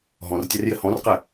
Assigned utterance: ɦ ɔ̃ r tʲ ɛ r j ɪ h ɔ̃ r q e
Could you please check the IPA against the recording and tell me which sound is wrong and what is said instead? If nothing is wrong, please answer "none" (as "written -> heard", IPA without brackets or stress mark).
none